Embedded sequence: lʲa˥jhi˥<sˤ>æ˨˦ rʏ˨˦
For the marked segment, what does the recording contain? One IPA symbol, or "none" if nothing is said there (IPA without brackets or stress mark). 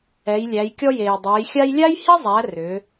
zˤ